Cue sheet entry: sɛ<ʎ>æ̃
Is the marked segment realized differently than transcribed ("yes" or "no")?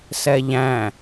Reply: no